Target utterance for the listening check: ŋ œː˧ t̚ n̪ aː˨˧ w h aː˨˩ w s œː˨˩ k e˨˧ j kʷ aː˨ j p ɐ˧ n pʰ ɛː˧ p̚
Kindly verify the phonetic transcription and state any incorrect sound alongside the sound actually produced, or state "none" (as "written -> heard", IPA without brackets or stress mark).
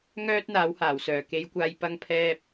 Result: n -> ŋ